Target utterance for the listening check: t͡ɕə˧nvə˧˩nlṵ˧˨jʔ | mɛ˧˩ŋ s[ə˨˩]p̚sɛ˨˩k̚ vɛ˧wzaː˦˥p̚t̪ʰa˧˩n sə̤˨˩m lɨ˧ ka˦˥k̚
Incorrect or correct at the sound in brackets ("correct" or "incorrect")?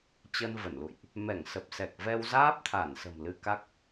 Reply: correct